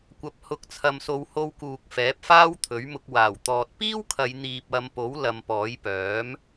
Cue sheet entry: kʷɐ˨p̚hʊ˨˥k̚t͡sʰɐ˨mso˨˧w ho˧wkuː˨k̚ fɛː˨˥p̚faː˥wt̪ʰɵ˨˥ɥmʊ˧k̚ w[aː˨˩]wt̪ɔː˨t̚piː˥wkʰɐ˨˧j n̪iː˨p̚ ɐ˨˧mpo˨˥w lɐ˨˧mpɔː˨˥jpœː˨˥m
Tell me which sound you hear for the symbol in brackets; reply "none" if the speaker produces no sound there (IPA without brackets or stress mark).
aː˨˩